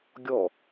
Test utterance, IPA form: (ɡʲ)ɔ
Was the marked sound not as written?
no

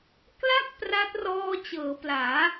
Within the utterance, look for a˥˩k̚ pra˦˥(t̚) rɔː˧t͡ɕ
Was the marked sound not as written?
no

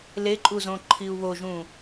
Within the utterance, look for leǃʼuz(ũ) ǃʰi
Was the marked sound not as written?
yes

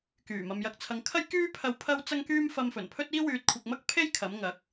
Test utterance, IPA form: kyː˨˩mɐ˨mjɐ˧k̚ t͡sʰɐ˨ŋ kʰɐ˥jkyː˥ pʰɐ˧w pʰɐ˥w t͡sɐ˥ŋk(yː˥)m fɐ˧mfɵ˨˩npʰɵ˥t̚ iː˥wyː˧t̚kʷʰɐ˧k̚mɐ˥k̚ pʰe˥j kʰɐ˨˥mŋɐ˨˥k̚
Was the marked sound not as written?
no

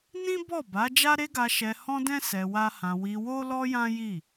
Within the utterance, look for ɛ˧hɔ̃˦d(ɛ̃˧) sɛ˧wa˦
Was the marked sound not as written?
yes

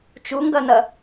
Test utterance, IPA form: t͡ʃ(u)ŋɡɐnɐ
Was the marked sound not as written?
no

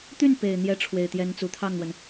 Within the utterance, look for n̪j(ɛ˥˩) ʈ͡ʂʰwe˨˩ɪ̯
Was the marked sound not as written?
yes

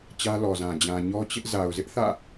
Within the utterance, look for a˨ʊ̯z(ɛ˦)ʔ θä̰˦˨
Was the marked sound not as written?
yes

